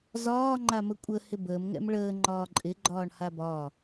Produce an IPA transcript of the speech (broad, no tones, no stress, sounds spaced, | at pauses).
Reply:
z ɒː ŋ͡ǃ a m ə kʷʼ ə h ɪ b əː m ŋ ɛ̰ m ɭ əː ŋ͡ǃ ɒː ǃʼ ɪ ɡ͡ǃ ɒː ɳ h a b ɒː